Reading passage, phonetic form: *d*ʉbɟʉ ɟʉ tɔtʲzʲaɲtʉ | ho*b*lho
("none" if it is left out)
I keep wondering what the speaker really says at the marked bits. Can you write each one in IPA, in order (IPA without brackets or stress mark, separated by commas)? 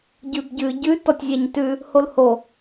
ɟ, none